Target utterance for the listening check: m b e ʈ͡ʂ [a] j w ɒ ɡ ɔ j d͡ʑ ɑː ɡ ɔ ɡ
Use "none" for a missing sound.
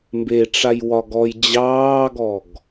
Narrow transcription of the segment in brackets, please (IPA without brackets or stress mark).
a